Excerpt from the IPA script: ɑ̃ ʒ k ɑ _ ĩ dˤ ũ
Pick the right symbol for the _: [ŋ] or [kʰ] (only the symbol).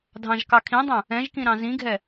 kʰ